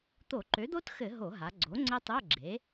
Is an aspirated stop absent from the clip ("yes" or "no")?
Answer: yes